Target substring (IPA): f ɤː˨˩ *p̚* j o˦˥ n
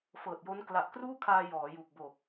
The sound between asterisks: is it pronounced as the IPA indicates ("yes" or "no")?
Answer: no